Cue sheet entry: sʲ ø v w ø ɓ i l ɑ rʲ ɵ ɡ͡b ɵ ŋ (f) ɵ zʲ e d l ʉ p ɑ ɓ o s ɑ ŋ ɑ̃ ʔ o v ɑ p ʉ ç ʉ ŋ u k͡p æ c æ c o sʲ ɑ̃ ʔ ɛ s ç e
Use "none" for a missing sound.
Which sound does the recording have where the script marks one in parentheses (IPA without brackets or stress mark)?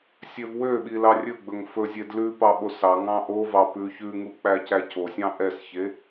f